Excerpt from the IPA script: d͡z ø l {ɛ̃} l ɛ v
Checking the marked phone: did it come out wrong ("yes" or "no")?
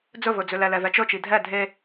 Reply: yes